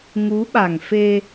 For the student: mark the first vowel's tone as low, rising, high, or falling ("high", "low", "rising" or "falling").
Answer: rising